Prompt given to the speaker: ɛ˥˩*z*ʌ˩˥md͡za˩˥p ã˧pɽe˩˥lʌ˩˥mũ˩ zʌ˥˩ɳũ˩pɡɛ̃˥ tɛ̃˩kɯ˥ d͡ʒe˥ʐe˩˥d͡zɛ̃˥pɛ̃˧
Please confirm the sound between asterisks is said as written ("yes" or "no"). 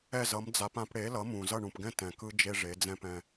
yes